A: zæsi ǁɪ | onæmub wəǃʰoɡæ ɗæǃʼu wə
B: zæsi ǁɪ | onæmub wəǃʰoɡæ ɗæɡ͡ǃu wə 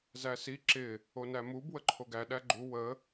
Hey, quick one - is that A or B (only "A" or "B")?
B